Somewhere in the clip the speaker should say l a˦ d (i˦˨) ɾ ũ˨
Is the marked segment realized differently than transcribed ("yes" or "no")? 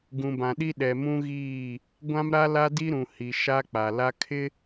yes